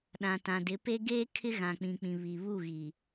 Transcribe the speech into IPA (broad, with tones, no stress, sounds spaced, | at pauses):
ɗ ã˨ t ã˨ d ɪ˨˦ p e˦ ɡ eː˦ kʰ ɪ˦ ɣ ã˨ k͡p ĩ˨ k͡p ĩ˨ β i˨ β u˦˨ ɣ i˨